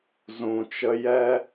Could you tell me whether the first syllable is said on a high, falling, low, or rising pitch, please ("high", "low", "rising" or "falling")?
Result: low